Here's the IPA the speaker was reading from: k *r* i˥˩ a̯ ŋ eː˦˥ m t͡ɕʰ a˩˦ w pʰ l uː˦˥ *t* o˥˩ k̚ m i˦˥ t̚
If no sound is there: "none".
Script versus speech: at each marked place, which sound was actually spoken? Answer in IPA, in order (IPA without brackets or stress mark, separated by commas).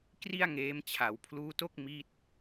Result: r, t